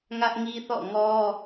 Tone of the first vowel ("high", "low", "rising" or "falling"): high